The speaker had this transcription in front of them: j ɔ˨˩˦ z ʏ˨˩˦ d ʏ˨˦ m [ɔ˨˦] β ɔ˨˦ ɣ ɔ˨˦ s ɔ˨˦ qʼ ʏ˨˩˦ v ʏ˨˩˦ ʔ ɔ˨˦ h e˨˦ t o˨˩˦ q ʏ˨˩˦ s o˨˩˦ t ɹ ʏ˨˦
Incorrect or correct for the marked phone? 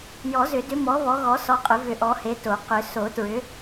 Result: correct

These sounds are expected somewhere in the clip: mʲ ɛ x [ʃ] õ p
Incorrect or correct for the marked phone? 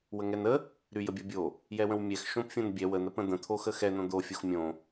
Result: correct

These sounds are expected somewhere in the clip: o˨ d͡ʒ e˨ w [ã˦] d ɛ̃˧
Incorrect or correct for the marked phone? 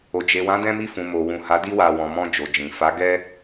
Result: incorrect: ã˨˦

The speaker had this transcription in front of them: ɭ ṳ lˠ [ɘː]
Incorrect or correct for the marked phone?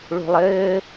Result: correct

